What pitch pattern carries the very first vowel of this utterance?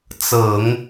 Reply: low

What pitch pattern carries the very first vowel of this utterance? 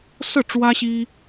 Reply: falling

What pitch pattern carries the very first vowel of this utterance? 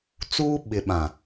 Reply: high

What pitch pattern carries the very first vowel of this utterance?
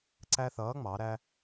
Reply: high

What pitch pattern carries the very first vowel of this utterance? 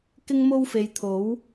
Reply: high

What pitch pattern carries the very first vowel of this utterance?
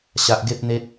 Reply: high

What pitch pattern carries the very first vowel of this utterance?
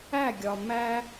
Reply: falling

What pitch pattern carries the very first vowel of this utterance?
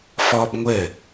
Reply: high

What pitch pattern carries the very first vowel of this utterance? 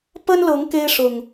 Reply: high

